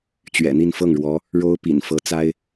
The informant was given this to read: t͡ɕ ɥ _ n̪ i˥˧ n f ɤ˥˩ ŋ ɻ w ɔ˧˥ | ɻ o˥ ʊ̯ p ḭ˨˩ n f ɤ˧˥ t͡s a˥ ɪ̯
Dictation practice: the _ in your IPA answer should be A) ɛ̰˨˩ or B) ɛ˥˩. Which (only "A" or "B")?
A